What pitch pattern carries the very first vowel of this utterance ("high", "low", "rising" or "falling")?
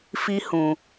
high